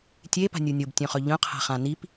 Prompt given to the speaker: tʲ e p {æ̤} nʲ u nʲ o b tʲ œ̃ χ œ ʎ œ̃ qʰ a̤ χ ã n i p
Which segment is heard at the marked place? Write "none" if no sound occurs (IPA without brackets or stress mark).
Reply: a̤